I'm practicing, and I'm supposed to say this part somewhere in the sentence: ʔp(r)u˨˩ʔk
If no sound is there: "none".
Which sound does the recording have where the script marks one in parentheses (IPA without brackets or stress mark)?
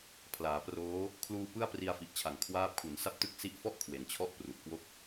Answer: r